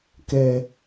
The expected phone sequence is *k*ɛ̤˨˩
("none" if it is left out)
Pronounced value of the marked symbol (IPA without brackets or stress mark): k